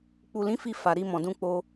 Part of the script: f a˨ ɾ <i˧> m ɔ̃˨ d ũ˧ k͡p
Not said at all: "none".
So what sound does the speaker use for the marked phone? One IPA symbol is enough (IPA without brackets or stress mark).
i˧